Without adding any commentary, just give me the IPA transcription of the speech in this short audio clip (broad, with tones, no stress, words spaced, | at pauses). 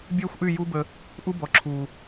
bʲøː˦xʷʔy˦˨ ju˦bə˧ | ʔu˦bɔ˨ǁʰuː˨